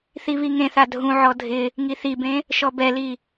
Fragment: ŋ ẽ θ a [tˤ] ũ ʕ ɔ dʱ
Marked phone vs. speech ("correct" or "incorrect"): incorrect